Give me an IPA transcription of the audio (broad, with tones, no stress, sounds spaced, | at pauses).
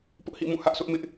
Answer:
p ʊ˦ ʔ h ḭ˦˨ m ũ˦˨ h ä˦ ʔ sʰ ʊ˦ ʔ m ɪ˦ ʔ